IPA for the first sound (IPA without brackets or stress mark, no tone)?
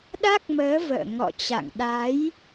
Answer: ɗ